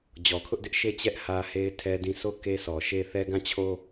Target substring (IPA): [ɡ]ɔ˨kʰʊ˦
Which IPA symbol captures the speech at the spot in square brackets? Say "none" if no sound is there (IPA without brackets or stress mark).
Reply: d͡ʑ